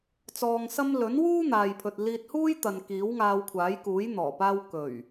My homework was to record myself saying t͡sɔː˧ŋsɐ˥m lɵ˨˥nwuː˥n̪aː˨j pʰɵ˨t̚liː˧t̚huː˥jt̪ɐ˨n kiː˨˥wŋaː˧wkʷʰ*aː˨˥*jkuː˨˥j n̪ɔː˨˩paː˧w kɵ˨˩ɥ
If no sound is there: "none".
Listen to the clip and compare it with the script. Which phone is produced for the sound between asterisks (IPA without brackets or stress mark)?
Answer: aː˨˥